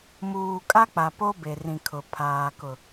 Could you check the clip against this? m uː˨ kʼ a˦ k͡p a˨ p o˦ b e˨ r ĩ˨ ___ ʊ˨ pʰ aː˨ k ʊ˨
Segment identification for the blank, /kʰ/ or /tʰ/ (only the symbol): kʰ